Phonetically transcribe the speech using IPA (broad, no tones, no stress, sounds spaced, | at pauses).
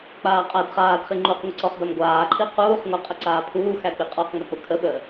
k͡p aː qʼ æ d χ aː d χ i ŋ͡ǃ u q ŋʷ ə ǀ ɔ χ d a m ɡʷ aː ǃʰ i q uː χ ŋʷ æ qʼ ə ǀ aː pʰ uː x æ k͡p i qʼ ɔ q ŋ͡m ʏ k͡p ʊ kʰ ə ɓ əː